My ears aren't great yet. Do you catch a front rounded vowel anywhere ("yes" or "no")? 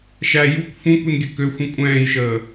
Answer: yes